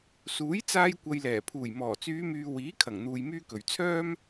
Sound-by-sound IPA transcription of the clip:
s uː˨˥ j t͡s aː˧ j kʷ ɐ˨ j l ɛː˨˩ pʰ uː˨˩ j m ɔː˨˩ t͡s yː˨˧ m yː˨ w iː˨˥ kʰ ɐ˨˩ ŋ n̪ uː˧ j m yː˥ k ɵ˨ ɥ t͡sʰ œː˥ m

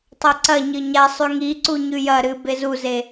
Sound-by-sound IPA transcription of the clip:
tˤ o ǀ ɐ ɲ ɨ ɲ a sˤ ʉ ŋ i ǀ u ɲ ʉ j ɐ ɾ ɨ b e z u z e

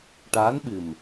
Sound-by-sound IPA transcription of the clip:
ʈ aː˧˥ n ɓ ɨ˨˩ m

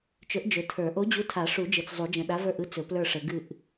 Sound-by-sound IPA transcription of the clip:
t͡ʃ ɵ˨˥ ʔ d͡ʒ ɵ˨ tʰ ə˞˨˩˦ ʔ o˨˥ d͡ʑ u˨˥ tʰ a˨˩˦ ʂ u˨˩˦ d͡ʒ ɯ˨ t͡s zˤ u˨˩˦ d͡ʒ ə̃˨ ɗ a˨˥ v ə˞˦˨ ʔ ɯ˨˥ t͡s ɵ˨˩˦ p l ə˞˦˨ ʂ ə˨˩˦ ɡ ɨ˦˨ ʔ

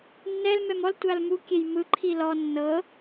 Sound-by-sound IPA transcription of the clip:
nː ɛ l m ɛ m ɔ l tʷ a l m u kʲ e j m ɯ ǃʰ i l ɔ nː ɤ

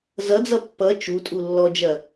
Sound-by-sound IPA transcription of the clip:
z ʌ d͡z ʌ pː ʌ t͡ʃ u tʼ u lː ɔ d͡ʒ ɐ

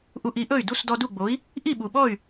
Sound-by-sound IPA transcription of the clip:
ʔ u˧ ʔ i˩˥ ʔ ɵ˥˩ y̯ d u˥˩ s d ɔ˧ d u˥˩ ɡ͡b o˩˥ i̯ | ʔ i˥˩ ɓ u˩ ɓ ɔ˥˩ y̯

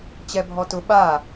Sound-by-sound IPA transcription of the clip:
t͡ɕ ɛ bʱ ɔ t ʊ ɓ a

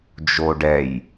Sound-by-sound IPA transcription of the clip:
d͡ʒ o ɖ ɛ j

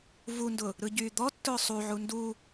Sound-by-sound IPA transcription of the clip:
v u n d ʊ | ɾ ɯ ɟ yː d̪ ɔ tː ʊː sˤ u ʕ u n d u

